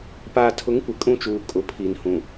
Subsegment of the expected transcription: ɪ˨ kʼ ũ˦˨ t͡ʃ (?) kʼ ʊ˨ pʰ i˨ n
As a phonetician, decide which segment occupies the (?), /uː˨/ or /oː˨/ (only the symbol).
uː˨